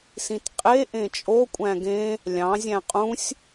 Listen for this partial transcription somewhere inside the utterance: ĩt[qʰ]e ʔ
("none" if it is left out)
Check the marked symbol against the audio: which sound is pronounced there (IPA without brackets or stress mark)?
qʼ